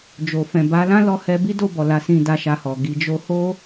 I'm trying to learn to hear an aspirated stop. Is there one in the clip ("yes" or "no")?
no